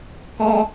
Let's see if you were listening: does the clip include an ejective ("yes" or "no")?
no